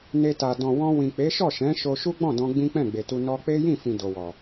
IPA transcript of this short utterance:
n e˧ t a˨ d ɔ̃˨ w ɔ̃˧ w ĩ˨ k͡p e˨˦ ʃ ɔ˦˨ ʃ ɛ̃˨˦ ʃ o˧ ʃ u˦ ɡ͡b ɔ̃˦˨ d ɔ̃˧ ɡ͡b ĩ˦ k͡p ɛ̃˦˨ ɡ͡b e˨ t u˧ n ɔ˦ k͡p e˦ j ĩ˦˨ f ĩ˨ d o˨ w ɔ˨

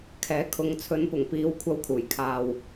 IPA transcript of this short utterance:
kʰ ɛː˨˥ kʰ ʊ˨˧ ŋ t͡sʰ ɵ˨˧ n p ʊ˨˩ ŋ p iː˨˧ w kʷʰ ɐ˧ w kʰ uː˨˩ j kʰ aː˨ w

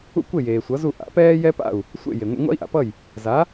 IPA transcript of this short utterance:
ṵ˥ kʷ e˥˩ j eː˩ sʷ ʌ˩˥ z u˥˩ ʔ a̰˩˥ p ɛː˥ j ɛ˥ p a̰˥˩ u̯ | sʷ ḛ˥˩ j e˩ ŋʷ ḛ˧ ŋʷ a̰˥ i̯ ʔ a̰˩ p ʌ˥˩ j | z a˩˥

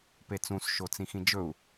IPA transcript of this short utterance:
p e t͡s ũ s ʃ o t͡s ĩ x ĩ d͡ʒ ɵ u̯

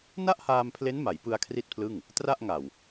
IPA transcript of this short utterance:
n a˥˩ ʔ h aː˧ m pʰ l e˦˥ n m a˩˦ j p ɯ˧ a̯ kʰ r i˥˩ t̚ pʰ l ɯ˥˩ ŋ | t r a˥˩ ʔ ŋ a˨˩ w

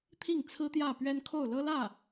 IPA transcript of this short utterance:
t̪ʰ i˥˩ ŋ t͡sʰ ɹ̩˥ t̪ j ä˥˩ p ɥ ɛ˥ n kʰ o˥˩ ʊ̯ l ɤ˥ l ä˥˩

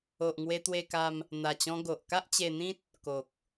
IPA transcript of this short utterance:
o˨ ʔ ŋ w e˧ t̪ w e˧ k a˧ m | n̪ a˨˩ t͡ɕ ɔ̃˧ ɡ o˨ ʔ k a˦ ʔ t͡ɕ e˧ n̪ ĩ˦ t̚ | k o˨ k̚

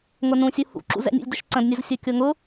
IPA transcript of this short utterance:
ŋ ʊ n ũ sʲ u h ṵ ǁ ṵ z ɛ̰ nʲ ṵ lʲ d ə ʃ ǀ ə̃ d nʲ ʊ z sʲ o kʲ o ŋ ʊ

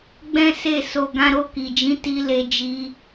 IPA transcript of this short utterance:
ɡ͡b ɛ̃˦ s e˦˨ s o˧ ɡ ã˧ ɾ o˧ k i˨ d͡ʒ ĩ˨˦ t i˦ l e˧ d͡ʒ i˧

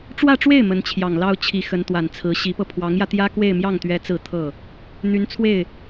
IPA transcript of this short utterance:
ʈ͡ʂ w ä˥˧ ʈ͡ʂ w e˥˩ ɪ̯ m ə˧˥ n t͡ɕʰ j ɑ˨˩ ŋ l ɑ˥ ʊ̯ t͡ɕʰ i˧˥ x ə˧˥ n t̪ w a˨˩ n t͡sʰ ɹ̩˧˥ ɕ i˧˥ p ɤ˧ pʰ w ɑ˧˥ ŋ j ä˧ t̪ j ä˥ k w e˥˧ ɪ̯ m j ɑ˥˩ ŋ t̪ ɥ ɛ˧˥ t͡s ɹ̩˥˧ t̪ʰ ɤ˥˩ | n̪ y˧˥ n t͡sʰ w e˥˩ ɪ̯

